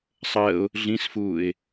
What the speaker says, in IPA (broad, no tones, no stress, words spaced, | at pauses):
sˤəːʊ̯ | ɮĩsfuːɪ̯